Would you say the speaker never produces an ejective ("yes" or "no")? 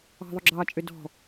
no